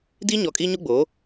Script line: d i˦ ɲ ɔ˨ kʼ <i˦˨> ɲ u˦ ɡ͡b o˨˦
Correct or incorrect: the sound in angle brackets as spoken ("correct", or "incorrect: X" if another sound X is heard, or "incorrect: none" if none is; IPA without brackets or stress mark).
incorrect: i˦